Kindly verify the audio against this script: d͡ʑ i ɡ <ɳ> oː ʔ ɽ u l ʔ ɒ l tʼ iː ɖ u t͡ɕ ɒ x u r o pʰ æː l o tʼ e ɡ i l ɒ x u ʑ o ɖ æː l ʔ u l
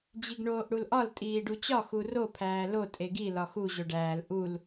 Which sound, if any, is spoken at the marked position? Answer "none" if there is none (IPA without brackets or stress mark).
ɳ